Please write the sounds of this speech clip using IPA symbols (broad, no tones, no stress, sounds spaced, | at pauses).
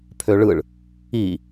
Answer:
pʰ ø ɭ ɯ ɭ | i